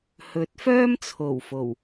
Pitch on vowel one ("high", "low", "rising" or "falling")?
rising